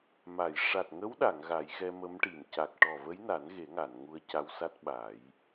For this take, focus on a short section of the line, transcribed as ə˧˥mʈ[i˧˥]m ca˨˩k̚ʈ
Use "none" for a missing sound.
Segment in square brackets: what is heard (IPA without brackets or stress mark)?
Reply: i˨˩